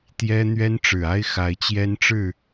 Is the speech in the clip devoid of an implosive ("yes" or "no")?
yes